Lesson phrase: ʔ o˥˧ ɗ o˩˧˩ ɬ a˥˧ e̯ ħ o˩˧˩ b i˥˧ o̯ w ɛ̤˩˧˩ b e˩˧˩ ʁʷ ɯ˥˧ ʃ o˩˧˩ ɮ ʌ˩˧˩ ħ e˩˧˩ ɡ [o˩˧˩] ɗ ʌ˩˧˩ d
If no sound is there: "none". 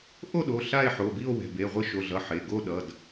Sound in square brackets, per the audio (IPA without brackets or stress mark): o˥˧